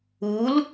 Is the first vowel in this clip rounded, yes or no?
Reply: yes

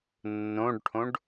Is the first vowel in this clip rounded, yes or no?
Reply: yes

